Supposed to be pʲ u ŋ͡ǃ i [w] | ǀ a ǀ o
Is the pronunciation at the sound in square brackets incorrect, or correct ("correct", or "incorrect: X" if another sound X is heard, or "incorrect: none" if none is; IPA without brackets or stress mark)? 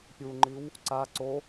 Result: correct